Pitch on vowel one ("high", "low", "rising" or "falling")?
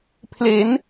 rising